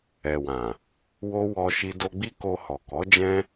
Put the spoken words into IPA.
ɛ˨ w ã˨ | w o˦ w ɔ˧ ʃ i˧ d o˧ ɡ͡b i˦ k o˧ h ɔ˨ k ɔ˨˦ d͡ʒ ɛ̃˦

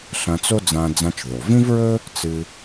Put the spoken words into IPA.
ɬ ɐ̃˧ t͡s o˥ d͡z ã˧ d͡z ã˧ t͡ʃ ð o˩ v ĩ˥ v ɹ ɵ˥ | t͡s ɨ˧

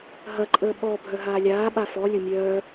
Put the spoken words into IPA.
ɦ ɐ ǃʼ əː ɓ ɔ bʱ œ ɦ aː lʲ aː ɓ a f ɔ lʲ ʊ mʲ œː

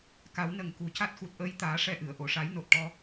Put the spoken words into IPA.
k a˨˩˦ w n ə˨˩ ŋ k u˨˩ c a˦˥ t̚ x u˨˩ t̚ ʔ əː˧ j t̪ aː˨˩˦ ʂ ɛ˧ ʔ ɨ˨˩˨ ə̯ ʔ o˨˩˨ ʂ a˨˩˦ j n o˨˩ t̚ ʈ ɔ˧

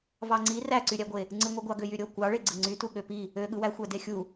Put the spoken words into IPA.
v ɑ ŋ͡ǀ i r æ ǀ y ɾʲ æ ɡʷ e | ŋ͡ǀ ɯ ŋʷ ɯ ɡʷ ɑ ɡ ø j y ɾʲ o kʷ ɑ ɭ e ɡ͡ǀ ɯ ŋ͡ǀ y t u ɠ ø p i | ø ɠ ɯ w æ xʷ æ d e xʲ u

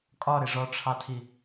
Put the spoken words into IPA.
kʼ ɒ ɾ ɪ ʐ ɔ ʈ͡ʂʰ ɑ tʰ i

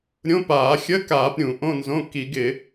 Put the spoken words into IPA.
ɾʲ õ˧˥˧ p aː˧˩˧ xʲ ə˧˥˧ k aː˧˩˧ p ɾʲ ũ˧˩˧ ʔ õ˧˥˧ n z õ˧˥˧ k i˧˩˧ ɡ ɪ˧˩˧

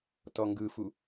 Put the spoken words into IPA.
t ɔ ŋ ɡ ɯ f u

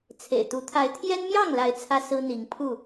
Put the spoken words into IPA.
t͡sʰ ḛ˨˩ ɪ̯ t̪ u˨˦ t̪ʰ a˨˦ ɪ̯ t̪ʰ j ɛ˦ n m j ɑ˥˨ ŋ l a˨˦ ɪ̯ t͡sʰ ä˦ s ɹ̩˦ n̪ i˨˦ ŋ pʰ u˥˨

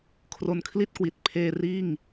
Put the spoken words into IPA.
kʰ r o˧ n kʰ l i˥˩ t̚ k w i˨˩ t̚ pʰ eː˧ r iː˥˩ ŋ

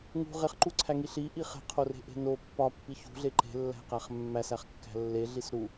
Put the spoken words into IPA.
ŋ ṳ ʁ e χ ǃ u ǀʰ æ ŋ i ɬ i ʔ i χ e̤ qʰ o r e̤ ʔ e̤ n o pː ɒ pː i ç ṳ ɮ e ǃ e̤ lː æ̤ q æ χ mː æ s æ χ kː æ̤ lː e ɮ i s ɾ u

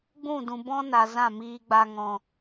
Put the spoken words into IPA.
ɡ͡b ũ˦˨ d ũ˨ b ɔ̃˦ n a˨ z ã˦˨ m iː˧ ɡ͡b a˧ ŋ ɔ̃˨

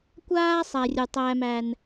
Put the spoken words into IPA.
kʷ aː˦ sˤ æ˨ rʲ u˨ tˤ æː˦ m æ˦ n

